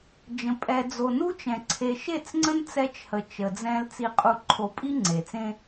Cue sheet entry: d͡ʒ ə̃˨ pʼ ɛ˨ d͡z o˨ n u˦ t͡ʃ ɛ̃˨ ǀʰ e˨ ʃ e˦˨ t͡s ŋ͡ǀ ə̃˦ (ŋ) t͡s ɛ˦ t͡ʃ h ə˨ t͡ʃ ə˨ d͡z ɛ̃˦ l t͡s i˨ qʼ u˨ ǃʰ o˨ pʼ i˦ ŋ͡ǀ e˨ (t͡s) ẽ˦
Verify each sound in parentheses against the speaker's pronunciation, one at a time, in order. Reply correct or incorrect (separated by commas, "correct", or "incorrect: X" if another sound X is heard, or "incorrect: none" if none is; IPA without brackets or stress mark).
incorrect: n, correct